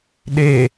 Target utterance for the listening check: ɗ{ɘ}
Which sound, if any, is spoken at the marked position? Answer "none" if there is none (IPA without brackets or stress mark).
e